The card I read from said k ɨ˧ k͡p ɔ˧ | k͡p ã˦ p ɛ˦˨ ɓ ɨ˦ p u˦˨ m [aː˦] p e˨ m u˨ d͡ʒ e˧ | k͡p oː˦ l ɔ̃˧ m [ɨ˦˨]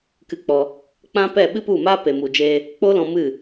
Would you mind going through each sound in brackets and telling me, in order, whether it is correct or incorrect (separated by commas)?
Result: correct, correct